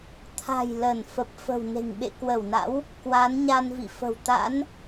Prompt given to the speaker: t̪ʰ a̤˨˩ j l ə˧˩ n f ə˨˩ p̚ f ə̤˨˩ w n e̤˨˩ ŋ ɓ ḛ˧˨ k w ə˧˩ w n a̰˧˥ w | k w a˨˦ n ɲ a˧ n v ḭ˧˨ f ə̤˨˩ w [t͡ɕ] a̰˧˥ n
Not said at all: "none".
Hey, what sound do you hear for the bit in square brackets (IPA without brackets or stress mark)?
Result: t̪